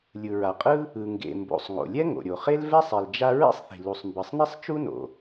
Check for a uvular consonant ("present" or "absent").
present